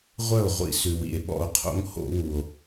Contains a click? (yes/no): no